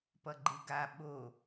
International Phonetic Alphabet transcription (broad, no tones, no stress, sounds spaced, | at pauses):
p ʌ ɡ͡ǃ ɯ ɡ a ɓ o